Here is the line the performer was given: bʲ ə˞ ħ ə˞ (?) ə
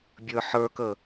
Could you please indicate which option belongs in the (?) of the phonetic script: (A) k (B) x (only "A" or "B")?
A